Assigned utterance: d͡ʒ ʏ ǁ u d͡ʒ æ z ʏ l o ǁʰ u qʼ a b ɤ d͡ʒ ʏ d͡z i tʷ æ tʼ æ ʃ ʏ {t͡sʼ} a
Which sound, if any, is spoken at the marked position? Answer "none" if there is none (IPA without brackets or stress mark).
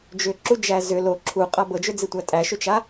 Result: t͡ʃ